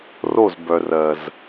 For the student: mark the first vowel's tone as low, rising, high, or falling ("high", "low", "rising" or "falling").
falling